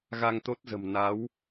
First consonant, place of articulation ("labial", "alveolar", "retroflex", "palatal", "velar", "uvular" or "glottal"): velar